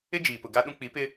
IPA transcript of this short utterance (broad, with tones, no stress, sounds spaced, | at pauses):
ɪ˦ d͡ʒ iː˨ p ʊ˨ ɡ a˦ ɗ ũ˦ k͡p i˨˦ p ɪ˦